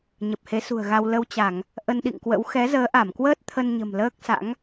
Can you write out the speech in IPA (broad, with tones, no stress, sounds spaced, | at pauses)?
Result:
ɲ ə˨˩ p̚ h e˨˦ s ṳ˨˩ ə̯ ɣ a˧ w l ə˧ w t͡ɕ a˧˩˨ ŋ | ʔ ə˧ n ɗ ḭ˧˨ ŋ k w ə̰˧˥ w x ɛ˨˦ z əː˨˦ ʔ a˧˩ m k w əː˦˥ t̚ t̪ʰ ə˧ n ɲ ə̤˨˩ m l əː˦˥ k̚ s a̰˧˥ ŋ